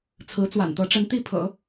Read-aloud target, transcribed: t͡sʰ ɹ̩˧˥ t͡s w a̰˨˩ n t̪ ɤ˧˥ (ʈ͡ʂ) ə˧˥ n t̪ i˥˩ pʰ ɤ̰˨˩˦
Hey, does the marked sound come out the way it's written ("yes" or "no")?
yes